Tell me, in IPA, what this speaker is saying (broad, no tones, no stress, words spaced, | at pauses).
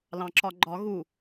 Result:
lɑ̃ǁɒɡ͡ǃɒɣu